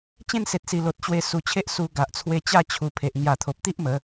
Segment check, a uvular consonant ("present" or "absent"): absent